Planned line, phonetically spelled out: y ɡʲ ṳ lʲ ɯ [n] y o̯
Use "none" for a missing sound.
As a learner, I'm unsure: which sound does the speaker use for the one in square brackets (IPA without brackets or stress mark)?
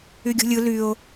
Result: l